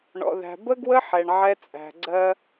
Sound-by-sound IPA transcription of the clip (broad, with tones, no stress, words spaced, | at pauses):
ɳɔ̰˧ðæ̤˧ bə˦ɡwə˦ ħɛ˧ɳʕɛ˦t͡sʼæ̤˧ ɡ͡ǀɜ˧